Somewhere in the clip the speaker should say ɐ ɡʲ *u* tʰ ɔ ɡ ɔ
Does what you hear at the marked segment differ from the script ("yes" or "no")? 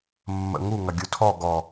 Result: no